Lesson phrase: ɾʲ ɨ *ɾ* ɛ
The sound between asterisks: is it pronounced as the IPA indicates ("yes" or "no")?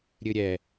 no